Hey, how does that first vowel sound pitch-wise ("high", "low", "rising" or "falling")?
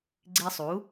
high